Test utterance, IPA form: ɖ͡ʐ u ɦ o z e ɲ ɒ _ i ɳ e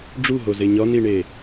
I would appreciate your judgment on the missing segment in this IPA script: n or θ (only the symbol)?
n